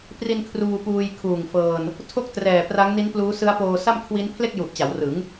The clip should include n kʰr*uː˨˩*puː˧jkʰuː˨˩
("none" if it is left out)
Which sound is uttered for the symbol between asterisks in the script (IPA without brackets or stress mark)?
uː˧